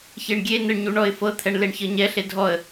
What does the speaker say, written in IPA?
ç e ɳ ɡʲ e n ɯ ɳ ɲ u ɳ ɔ ɪ̯ f ɤ t̪ʰ ɛ ɳ l e ɳ ç ɤ ɲ ɛ ɬ e dʱ ɔ ə̯

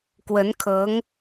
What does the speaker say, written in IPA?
k w ə˧˥ n kʰ ɤ˧˥ ŋ

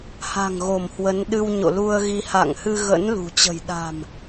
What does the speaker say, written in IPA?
h a̤˨˩ ŋ ɣ o˧˩ m h w ə˨˦ n ɗ ɨ˧ w ɲ o̰˧˨ l u˧ ə̯ ɣ i˧ h a̰˧˨ ŋ h ɨ˧ ɣ ə̰˧˥ n l ṳ˨˩ t͡ɕ ə̤˨˩ j ɗ a̤˨˩ m

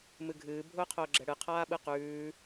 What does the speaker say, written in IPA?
m ɨ ɡʱ ɨː bʱ ʊː qʰ ʊː ɡ͡ǁ ɛ ɽ ɨ qʰ aː ɓ ɨ q ʉː

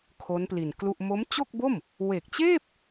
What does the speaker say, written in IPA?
kʰ o˦˥ n p l i˨˩ n k l u˥˩ ʔ m o˦˥ m t͡ɕ o˥˩ k̚ b o˥˩ m | w e˨˩ k̚ t͡ɕ eː˥˩ p̚

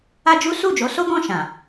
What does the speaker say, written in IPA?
a˦ d͡ʒ u˦ s u˦˨ d͡ʒ o˨˦ s o˦ ɡ ɔ̃˦˨ ʃ ã˨

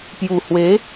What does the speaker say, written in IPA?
p j u˨˩ h w e˨˦

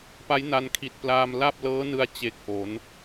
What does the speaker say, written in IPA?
p a˦˥ j n a˧ n kʰ i˨˩ t̚ p l aː˧ m l a˥˩ p̚ l ɤː˦˥ n ɯ˧ a̯ t͡ɕ e˨˩ k̚ ʔ o˩˦ n

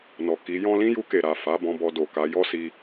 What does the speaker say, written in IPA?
n ɔ˨ k i˨˦ j ɔ̃˦ l ĩ˦ j u˧ k e˨ ɾ a˨ f a˨˦ b ɔ̃˧ b ɔ˧ d o˨ k a˨˦ j ɔ˦ s i˧

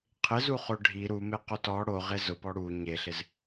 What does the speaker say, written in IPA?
qʰ ɪ z u χ o ɖʱ i ɾ u m e q o t ɔ ɽ o ʁ e z ʊ p ɔ ɽ u ɲ e ɬ ɪ z

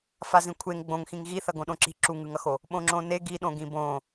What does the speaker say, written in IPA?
f a z ĩ kʷʰ e ŋ ɡ͡b õ ŋ x ĩ ŋ ɣ i θ ʌ ɡ õ ɗ õ ǁ i̤ ǁ u ŋ ɯ ŋ ʌ x o | ɓ õ ŋ͡ǁ õ n e ɡ i ɗ õ ɡ ĩ b õ

